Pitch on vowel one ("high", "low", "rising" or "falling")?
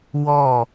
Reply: falling